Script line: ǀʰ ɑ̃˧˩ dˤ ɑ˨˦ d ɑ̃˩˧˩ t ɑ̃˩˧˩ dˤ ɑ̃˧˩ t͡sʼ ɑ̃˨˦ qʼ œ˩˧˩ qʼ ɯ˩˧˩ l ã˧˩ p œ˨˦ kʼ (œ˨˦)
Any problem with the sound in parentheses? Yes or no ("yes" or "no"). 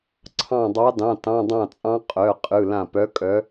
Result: no